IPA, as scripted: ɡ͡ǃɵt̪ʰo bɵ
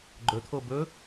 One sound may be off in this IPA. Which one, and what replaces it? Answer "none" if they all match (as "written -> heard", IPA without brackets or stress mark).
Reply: none